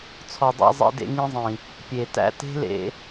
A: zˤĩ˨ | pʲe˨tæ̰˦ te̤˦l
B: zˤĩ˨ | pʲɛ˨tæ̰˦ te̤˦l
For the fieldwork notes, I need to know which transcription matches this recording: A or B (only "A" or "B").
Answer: A